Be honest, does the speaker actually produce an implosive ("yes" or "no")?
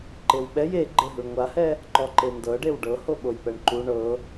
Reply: yes